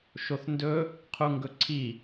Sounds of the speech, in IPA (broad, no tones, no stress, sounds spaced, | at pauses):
ʃ o θ n d ɵ | qʰ u ŋ ɡ ɵ ǀʰ i